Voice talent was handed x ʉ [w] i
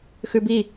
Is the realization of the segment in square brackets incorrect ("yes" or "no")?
yes